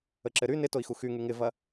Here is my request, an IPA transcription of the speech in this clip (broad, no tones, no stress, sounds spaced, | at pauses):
ə ǁ ɘ ɾ y n ɪ t o i̯ x u x y ŋ y ŋ ɪ v ɐ